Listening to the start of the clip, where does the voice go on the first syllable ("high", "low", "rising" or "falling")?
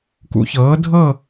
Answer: rising